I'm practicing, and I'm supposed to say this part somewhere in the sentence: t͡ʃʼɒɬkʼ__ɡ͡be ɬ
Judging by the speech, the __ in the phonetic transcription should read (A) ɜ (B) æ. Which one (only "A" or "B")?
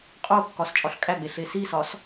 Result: B